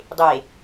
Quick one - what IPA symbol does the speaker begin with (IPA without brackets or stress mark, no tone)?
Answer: dˤ